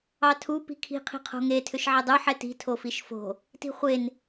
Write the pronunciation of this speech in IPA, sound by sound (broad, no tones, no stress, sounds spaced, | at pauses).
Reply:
ɑ tʰ u p i̤ kʰ i̤ qʰ i̤ qʰ o̤ ŋ e tʰ ʏ ʃ ʕ e dˤ u ħ ɛ t i̤ tʰ o f i ʃ f o̤ | t i̤ χʷ e n